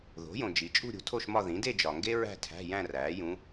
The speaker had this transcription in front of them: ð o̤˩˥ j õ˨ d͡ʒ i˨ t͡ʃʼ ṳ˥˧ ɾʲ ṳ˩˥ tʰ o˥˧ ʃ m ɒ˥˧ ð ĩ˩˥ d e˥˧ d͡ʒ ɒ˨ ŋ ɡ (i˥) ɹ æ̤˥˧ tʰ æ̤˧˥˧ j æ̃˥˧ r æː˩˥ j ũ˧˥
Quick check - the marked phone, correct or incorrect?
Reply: incorrect